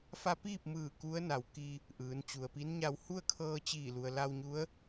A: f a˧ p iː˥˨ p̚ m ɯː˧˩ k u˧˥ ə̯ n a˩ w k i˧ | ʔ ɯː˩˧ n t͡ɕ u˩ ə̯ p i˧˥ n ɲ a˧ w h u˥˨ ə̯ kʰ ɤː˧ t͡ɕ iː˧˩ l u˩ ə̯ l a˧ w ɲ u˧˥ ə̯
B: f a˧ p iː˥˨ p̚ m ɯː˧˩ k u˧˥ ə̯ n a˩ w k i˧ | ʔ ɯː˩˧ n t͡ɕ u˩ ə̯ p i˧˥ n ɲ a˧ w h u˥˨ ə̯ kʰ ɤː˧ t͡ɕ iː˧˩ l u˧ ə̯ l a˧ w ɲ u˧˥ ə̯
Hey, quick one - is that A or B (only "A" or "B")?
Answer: A